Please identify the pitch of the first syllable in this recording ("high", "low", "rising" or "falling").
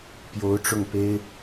rising